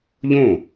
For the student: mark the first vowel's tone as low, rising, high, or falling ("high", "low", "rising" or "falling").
falling